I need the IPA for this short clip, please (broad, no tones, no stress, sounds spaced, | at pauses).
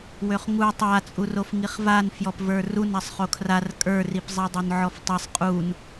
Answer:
w ø χ ŋ u tˤ a t͡sʼ u r o f ŋ i χ v a n f j ɔ p v ə˞ r u n a sˤ χ o kʰ r a r kʼ ə˞ r i p zˤ ɛ dˤ ø n ʕ ɔ f tˤ i sˤ qʼ u n